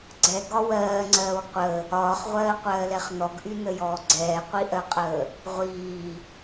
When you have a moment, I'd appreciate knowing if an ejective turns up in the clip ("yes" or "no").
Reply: yes